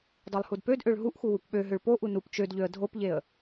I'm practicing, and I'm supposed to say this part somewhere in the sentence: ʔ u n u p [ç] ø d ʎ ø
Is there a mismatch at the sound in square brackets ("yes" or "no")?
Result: yes